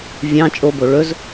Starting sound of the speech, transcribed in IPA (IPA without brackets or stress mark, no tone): vʲ